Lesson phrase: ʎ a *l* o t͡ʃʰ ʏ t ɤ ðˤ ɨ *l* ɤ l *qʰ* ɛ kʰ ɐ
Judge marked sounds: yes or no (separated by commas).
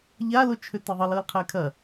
yes, yes, yes